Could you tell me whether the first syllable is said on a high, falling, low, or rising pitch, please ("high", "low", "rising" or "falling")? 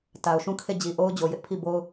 low